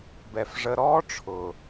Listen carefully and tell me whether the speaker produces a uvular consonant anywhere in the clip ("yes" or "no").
no